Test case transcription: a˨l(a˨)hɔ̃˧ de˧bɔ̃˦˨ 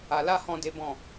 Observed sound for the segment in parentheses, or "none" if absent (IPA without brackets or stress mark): a˦